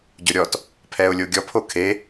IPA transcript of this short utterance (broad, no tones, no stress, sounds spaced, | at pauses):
ɟ ʊ ɾʲ ɔ t | pʰ ɛ ʊ̯ lʲ o ɡʲ ɔ pʰ o kʰ e